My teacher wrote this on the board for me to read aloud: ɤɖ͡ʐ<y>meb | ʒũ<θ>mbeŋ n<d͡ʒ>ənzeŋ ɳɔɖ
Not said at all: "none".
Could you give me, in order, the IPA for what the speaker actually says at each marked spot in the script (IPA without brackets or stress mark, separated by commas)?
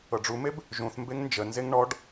u, θ, d͡ʒ